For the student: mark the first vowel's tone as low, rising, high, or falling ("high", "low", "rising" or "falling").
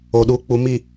low